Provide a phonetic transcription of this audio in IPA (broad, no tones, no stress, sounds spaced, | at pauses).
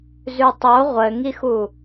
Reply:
z ʉ tˤ o ʁʷ ɘ ŋ i x u